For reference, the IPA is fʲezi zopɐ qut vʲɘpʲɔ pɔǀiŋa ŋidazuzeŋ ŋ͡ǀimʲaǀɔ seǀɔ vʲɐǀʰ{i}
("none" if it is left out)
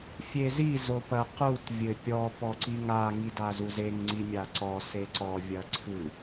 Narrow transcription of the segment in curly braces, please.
ɨ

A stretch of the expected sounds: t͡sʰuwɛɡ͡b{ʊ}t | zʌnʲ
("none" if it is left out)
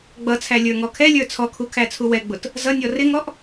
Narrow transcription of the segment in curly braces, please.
ʊ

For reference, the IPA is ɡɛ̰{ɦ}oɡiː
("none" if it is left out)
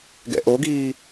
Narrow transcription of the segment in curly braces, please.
ʔ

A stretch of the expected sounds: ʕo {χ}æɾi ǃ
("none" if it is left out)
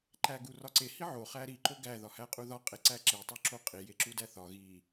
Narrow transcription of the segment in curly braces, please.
χ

